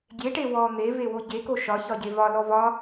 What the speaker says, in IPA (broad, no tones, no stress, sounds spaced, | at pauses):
ɡʲ e ʈ e w ɔ n̪ e v e w o ɟ e k o ʃ ɒ ç ɒ ɟ e v ɒ l ɔ v ɒ